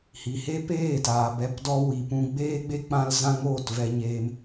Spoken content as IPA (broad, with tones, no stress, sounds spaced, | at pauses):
h i˨ h e˦ p eː˦˨ t aː˨ b ɛ˧ p d ɔ˧ w i˨ p ũ˧ ɡ͡b eː˦ ɡ͡b e˦ k͡p ã˧ l z ã˦ ŋ oː˦˨ t v ɛ˧ ɲ eː˧ m